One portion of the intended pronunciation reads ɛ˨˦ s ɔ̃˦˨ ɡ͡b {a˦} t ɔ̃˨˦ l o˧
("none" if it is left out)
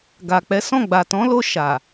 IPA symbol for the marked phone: a˨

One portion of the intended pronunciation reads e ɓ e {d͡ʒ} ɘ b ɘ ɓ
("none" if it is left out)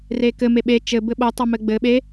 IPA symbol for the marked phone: t͡ʃ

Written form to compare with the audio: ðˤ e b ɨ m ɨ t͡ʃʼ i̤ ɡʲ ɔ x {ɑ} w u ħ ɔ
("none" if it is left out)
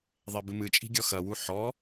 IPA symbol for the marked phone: ɐ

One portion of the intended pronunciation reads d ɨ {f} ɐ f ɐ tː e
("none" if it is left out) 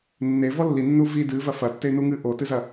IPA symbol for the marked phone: v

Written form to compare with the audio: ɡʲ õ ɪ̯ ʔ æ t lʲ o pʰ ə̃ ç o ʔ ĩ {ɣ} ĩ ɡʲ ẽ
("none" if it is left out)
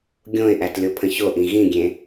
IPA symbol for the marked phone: ɣ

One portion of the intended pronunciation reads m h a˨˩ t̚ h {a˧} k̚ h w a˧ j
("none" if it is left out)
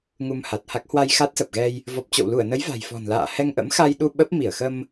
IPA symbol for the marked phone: a˦˥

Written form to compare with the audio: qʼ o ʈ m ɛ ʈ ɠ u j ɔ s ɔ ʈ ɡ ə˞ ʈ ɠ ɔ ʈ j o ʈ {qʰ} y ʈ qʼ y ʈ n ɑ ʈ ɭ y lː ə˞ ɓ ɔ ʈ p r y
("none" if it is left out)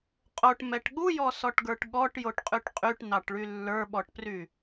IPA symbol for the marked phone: qʼ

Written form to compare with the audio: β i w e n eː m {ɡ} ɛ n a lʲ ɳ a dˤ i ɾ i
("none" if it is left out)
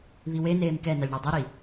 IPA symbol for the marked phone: k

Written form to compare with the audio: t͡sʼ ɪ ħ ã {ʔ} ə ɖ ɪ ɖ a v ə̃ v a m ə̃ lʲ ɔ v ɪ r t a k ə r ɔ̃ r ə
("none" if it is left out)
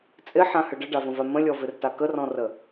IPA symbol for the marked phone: h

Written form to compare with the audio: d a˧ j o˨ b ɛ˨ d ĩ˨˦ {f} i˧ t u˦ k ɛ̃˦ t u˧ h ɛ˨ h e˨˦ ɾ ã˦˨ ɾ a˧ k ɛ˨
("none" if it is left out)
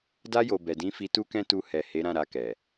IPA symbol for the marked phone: f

